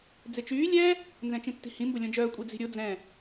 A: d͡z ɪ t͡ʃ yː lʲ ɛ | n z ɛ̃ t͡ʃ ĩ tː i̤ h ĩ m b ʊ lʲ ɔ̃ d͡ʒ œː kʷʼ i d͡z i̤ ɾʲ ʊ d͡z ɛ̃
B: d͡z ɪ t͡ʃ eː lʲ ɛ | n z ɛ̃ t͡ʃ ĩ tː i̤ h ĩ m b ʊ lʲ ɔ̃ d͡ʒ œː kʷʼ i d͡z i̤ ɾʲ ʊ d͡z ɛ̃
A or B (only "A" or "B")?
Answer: A